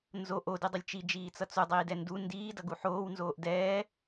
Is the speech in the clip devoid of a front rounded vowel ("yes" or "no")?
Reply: yes